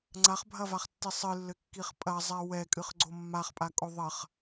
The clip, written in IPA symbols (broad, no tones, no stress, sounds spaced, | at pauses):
ŋ͡ǀ a χ bʱ ɐ v a χ tː i sˤ ɨ lː ɘ kː i χ pʼ ɐ zˤ ɛ w ɛ kʼ ɨ χ ɡ͡ǀ o mː a χ pʼ a kʼ o ðˤ ɐ χ